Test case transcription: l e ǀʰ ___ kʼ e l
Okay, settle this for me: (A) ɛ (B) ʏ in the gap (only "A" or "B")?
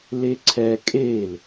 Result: A